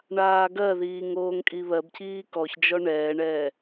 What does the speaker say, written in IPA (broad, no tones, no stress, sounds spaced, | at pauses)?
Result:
ɳ aː ɡ ɜ ð iː ŋ oː ŋ kʼ i β ɜ b cʰ iː k ɔ ç d͡ʒ ɔ ɳ ɛː ɳ ɛː